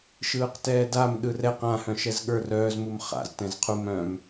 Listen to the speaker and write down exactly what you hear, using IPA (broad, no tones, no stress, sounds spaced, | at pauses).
ʃ ɯː q t ɛː d a m ɗ ɯ r ɛ q ã h œ̃ ʃ ɛ z ɠ ə˞ r œː z m u m χ a̰ z t ɛ̃ z qʰ u m œ̃ m